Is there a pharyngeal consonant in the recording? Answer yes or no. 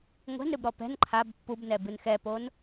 no